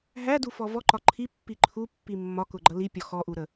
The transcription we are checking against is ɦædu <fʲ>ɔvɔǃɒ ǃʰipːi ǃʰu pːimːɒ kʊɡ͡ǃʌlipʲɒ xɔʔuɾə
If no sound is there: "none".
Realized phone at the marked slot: f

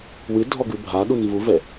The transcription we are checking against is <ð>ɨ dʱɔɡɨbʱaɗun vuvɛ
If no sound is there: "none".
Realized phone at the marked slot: w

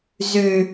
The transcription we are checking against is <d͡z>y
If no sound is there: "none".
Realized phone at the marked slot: z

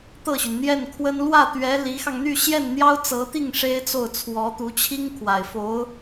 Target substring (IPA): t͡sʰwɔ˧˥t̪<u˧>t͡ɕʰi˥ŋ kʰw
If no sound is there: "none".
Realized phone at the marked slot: u˧˥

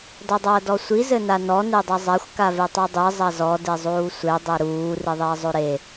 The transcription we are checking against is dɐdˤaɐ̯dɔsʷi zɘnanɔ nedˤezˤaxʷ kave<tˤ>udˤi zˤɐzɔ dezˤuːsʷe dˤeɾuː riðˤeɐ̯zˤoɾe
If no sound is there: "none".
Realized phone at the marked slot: tˤ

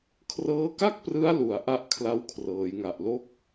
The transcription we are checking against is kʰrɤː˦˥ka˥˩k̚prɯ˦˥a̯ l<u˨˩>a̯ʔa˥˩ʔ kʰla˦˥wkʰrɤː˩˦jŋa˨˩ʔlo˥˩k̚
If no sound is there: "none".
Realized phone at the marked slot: u˨˩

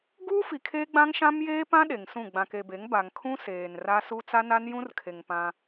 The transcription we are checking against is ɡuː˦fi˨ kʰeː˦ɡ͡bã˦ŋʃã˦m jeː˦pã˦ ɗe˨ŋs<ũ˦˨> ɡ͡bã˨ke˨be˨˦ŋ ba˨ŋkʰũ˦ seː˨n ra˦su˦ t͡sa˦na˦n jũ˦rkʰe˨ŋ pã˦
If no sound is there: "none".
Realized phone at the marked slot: ũ˦˨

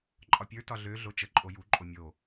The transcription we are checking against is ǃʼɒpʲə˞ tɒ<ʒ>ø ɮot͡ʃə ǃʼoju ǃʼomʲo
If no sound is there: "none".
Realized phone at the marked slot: ɮ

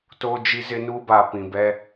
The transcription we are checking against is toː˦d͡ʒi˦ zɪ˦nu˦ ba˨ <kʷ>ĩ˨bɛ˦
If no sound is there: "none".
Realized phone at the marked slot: p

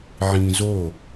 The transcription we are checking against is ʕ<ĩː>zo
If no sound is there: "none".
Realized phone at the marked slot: ĩː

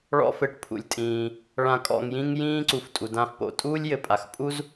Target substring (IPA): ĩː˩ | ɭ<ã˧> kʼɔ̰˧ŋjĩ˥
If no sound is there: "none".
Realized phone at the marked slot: ã˧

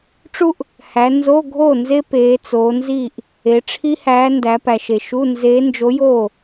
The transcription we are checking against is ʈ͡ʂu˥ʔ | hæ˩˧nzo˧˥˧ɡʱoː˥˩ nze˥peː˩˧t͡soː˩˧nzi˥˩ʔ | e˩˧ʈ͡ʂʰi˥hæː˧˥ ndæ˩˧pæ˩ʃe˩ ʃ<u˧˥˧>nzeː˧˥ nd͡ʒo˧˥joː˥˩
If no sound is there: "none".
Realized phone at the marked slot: u˧˥˧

